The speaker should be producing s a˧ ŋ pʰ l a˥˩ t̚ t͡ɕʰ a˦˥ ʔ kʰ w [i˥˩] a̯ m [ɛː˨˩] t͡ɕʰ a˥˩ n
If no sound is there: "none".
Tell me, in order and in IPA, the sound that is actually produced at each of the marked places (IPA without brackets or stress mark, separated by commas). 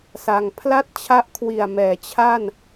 i˨˩, ɛː˨˩